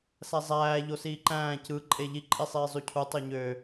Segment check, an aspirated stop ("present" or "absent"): present